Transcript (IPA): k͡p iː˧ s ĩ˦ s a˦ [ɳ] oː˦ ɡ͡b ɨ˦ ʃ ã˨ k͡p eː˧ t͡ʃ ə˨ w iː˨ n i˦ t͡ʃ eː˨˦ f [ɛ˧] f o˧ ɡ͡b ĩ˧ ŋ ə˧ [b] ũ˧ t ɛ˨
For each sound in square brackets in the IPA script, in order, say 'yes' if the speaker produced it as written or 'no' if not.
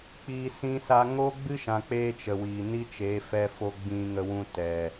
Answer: no, yes, no

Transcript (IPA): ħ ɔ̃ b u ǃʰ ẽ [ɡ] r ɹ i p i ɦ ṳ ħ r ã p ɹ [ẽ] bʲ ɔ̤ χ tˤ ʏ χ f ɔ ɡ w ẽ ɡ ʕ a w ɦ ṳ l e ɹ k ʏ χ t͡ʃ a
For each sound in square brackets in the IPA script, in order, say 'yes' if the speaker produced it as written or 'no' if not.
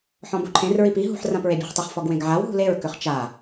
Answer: no, no

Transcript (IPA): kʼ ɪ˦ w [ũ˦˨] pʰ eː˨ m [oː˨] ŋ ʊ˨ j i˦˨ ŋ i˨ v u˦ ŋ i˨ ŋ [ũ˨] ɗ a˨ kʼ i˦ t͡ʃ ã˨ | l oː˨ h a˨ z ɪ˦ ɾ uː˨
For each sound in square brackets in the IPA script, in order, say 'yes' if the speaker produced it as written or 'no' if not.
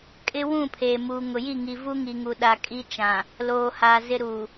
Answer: yes, no, no

